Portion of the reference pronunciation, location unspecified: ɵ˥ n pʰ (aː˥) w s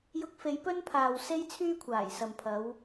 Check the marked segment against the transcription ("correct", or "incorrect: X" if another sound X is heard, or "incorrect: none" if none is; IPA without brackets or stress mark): incorrect: aː˨